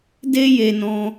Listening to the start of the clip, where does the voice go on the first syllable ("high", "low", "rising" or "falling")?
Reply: high